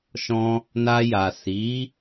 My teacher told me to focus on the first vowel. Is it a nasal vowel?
yes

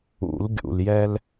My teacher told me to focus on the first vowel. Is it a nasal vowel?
no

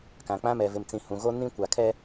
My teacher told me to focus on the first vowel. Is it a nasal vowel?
yes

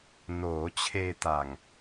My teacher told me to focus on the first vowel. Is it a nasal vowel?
no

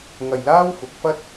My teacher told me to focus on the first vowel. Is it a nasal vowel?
no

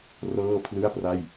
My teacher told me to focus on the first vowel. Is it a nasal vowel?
no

